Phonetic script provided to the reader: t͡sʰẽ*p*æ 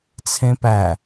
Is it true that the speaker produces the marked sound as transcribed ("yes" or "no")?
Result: yes